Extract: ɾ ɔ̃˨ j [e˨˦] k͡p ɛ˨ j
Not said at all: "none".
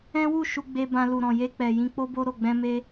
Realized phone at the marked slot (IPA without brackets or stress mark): e˧